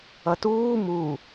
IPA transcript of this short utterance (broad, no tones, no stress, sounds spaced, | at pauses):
ʌ t uː m u